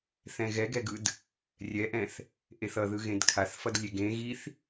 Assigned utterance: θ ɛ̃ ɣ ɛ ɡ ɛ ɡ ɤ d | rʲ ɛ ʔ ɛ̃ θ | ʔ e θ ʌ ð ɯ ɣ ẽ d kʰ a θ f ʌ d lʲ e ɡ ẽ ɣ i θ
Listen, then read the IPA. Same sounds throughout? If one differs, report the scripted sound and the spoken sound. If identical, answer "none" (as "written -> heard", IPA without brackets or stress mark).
ɤ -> ɯ